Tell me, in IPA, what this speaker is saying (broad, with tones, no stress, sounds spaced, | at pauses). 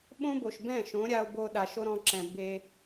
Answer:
ɓ õ˦ b o˨ ʃ b ɛ̃˦˨ ʃ õ˨˦ ɾʲ a˧ o̯ b o˧ ɗ a˨ ʃ o˦ ɾ ɔ̃˧ ǁ ɛ̃˨ b e˦